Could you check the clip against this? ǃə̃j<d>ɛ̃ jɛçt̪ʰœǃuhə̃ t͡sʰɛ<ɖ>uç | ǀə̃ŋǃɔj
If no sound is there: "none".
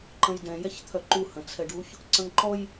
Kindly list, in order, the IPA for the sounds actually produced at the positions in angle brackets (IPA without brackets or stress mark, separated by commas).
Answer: d, ɖ